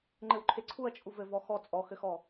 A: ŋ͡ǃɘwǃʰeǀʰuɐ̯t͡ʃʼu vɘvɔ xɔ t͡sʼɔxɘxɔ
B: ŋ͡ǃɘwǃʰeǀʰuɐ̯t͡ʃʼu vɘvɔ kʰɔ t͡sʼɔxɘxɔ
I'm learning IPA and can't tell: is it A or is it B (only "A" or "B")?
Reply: A